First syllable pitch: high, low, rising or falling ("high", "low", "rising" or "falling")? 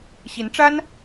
rising